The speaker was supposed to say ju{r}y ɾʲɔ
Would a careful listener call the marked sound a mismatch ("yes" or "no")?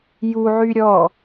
yes